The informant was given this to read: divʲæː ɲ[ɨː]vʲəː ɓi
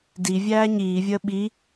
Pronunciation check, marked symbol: incorrect: iː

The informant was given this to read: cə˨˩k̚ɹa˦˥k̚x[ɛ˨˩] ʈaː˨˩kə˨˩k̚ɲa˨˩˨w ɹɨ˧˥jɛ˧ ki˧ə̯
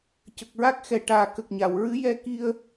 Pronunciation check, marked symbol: correct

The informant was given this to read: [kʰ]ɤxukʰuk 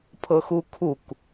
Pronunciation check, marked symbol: incorrect: pʰ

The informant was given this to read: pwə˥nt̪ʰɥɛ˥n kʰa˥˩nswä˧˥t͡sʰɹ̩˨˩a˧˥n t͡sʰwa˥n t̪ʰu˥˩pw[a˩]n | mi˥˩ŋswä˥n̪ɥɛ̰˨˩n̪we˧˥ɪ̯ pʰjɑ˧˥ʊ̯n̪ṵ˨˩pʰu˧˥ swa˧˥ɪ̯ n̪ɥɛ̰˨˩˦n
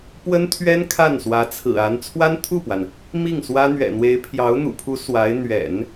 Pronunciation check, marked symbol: correct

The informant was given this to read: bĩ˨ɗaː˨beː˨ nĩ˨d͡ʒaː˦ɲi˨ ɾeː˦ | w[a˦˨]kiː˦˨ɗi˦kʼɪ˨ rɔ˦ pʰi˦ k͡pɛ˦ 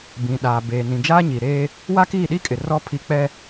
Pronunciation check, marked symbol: incorrect: a˦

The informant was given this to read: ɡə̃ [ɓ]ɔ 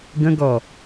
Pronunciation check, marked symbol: incorrect: ɡ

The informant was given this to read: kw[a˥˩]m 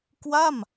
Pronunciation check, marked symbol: correct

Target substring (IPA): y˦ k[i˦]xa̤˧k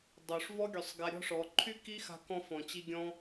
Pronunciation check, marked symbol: correct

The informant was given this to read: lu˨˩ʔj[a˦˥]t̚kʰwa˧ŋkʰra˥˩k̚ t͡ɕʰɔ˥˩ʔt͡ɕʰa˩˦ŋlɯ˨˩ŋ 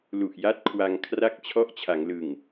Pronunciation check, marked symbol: incorrect: a˥˩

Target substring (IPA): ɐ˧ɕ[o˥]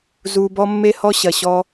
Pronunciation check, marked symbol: incorrect: ɔ˥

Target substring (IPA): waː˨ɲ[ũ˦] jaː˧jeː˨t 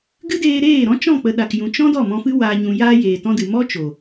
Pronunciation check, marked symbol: incorrect: ũ˨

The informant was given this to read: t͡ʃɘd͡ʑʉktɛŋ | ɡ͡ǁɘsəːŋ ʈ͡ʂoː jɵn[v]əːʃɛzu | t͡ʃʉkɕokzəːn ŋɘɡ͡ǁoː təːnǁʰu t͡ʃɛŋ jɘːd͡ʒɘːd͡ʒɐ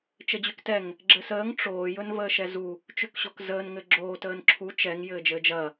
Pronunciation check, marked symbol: correct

